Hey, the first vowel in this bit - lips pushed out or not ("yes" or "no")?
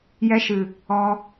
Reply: no